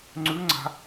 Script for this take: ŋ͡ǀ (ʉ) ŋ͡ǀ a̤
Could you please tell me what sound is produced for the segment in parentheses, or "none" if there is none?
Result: ʉ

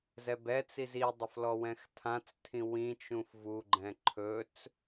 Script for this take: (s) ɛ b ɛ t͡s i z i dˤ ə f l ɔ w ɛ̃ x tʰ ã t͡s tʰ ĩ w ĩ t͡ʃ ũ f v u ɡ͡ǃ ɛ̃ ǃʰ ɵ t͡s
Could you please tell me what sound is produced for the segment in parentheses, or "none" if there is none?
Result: z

